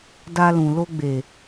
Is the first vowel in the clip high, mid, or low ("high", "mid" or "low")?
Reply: low